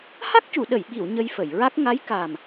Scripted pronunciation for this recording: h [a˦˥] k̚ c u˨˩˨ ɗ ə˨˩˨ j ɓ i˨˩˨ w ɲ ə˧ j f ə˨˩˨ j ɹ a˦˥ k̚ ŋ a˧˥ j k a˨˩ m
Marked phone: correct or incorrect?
correct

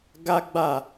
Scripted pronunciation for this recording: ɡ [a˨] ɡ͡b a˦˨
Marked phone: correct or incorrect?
incorrect: a˦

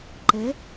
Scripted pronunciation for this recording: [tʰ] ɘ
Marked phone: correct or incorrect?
incorrect: ǃ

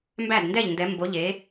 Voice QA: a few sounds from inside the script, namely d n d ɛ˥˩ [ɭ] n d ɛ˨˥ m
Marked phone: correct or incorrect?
incorrect: ʎ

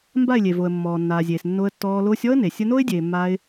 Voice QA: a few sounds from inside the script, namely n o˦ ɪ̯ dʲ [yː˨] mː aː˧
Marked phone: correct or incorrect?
incorrect: eː˨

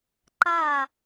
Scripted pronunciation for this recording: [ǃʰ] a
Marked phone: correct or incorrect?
incorrect: ǃ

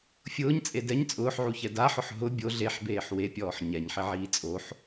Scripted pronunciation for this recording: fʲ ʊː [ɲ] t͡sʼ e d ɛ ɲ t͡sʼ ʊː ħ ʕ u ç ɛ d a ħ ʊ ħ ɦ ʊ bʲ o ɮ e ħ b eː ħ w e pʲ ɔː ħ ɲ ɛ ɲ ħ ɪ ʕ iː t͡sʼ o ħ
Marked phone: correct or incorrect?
correct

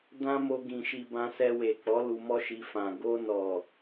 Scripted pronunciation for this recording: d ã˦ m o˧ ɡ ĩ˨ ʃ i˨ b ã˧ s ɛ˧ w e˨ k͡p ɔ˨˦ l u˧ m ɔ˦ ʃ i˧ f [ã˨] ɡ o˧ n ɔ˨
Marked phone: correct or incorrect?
correct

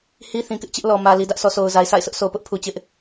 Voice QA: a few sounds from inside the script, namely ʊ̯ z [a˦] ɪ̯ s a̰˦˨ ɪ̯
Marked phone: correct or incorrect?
incorrect: a˨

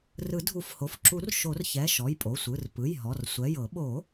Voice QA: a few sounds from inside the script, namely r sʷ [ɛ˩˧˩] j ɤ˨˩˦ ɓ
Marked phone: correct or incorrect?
correct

